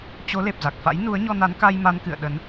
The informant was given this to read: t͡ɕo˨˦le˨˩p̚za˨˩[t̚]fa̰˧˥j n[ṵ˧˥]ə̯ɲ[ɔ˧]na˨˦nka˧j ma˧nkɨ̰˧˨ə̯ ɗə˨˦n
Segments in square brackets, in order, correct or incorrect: incorrect: k̚, incorrect: u˨˦, correct

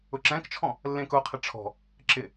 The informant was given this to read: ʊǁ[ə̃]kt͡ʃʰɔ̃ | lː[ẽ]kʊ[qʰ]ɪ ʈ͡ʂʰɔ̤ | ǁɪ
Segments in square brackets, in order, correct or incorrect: incorrect: ɛ̃, correct, correct

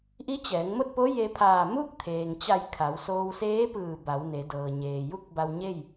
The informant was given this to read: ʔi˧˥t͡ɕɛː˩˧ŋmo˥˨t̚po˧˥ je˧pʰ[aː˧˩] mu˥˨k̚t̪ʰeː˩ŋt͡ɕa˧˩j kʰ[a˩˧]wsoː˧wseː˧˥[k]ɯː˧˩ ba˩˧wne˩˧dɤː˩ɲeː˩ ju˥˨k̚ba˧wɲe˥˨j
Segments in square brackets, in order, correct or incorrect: correct, correct, incorrect: p

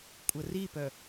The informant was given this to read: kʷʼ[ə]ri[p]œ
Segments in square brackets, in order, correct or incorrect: correct, correct

